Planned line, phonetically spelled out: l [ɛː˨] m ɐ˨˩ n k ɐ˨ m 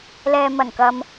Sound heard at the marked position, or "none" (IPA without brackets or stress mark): ɛː˨